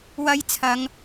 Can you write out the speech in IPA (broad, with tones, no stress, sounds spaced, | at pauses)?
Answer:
w ɐ˨˧ j t͡sʰ ɐ˨˧ ŋ